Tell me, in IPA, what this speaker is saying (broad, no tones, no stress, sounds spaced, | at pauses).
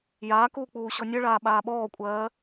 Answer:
j aː k uː k͡p uː ɕ ɔ nʲ ɜ ɭ aː ɓ aː ɓ ɔː kʷʼ ɜː